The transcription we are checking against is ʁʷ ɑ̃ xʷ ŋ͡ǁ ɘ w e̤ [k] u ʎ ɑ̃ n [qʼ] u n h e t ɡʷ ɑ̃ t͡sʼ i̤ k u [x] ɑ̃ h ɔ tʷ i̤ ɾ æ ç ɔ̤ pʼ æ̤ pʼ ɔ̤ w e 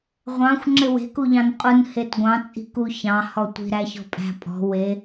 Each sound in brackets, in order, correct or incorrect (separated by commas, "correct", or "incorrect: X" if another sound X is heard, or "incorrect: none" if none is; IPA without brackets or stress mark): correct, correct, incorrect: ç